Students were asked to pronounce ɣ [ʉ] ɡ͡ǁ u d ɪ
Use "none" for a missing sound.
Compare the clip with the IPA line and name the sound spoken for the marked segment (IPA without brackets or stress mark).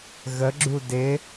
ə